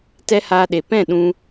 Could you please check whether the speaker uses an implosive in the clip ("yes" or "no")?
yes